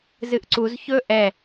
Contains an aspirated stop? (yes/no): no